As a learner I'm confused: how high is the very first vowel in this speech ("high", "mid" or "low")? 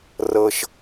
mid